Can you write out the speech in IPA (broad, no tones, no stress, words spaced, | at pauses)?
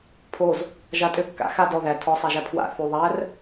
pʰoz | ʒa tʼø kːa̰ xa dɔ ðæ tʰɔsˤæʒæ pʰwa̰ θʉ ðˤær